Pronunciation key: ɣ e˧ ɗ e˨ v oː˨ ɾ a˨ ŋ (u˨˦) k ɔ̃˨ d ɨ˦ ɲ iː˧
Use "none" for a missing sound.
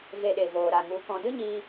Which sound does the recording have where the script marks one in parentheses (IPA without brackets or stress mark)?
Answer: u˨˦